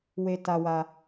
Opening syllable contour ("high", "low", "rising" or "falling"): high